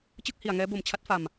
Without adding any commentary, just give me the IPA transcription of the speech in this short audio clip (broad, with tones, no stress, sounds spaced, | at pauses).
t͡ɕ ɯ˥˩ k̚ h i˨˩ a̯ ŋ ɛː˦˥ b o˩˦ m t͡ɕʰ a˦˥ t̚ f a˨˩ m